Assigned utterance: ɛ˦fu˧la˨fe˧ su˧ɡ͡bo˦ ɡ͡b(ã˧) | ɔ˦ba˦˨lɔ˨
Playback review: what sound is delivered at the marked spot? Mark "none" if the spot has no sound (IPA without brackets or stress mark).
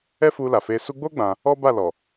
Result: ã˧